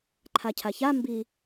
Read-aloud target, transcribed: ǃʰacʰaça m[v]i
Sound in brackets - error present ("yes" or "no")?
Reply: yes